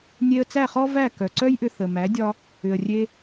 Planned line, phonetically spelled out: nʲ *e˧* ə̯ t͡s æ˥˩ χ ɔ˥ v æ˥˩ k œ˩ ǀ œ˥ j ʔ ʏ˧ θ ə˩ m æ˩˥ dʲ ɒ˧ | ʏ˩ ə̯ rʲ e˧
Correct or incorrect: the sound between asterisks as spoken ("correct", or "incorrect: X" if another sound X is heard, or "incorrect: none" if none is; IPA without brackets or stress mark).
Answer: correct